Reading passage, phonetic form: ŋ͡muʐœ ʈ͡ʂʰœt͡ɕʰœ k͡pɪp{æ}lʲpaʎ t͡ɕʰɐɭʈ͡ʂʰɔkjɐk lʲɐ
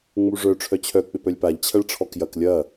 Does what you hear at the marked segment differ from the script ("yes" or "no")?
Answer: yes